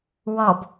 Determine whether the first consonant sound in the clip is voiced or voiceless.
voiced